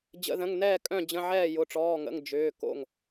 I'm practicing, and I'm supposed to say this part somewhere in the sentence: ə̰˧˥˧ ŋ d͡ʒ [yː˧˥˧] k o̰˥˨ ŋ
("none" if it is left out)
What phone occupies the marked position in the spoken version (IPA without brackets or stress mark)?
ʏː˧˥˧